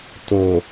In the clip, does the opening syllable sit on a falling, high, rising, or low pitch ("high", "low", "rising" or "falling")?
low